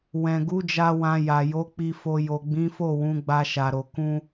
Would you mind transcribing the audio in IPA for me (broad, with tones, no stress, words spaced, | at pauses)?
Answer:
wɛ̃˨ɡu˨˦d͡ʒa˧ wã˧ja˨ jo˨˦k͡pi˧ fo˨ jo˨ɡ͡bĩ˨˦fo˦˨ wũ˨˦ɡ͡ba˧ʃa˨ɾo˨ kũ˧